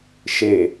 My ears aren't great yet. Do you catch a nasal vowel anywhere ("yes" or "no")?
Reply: no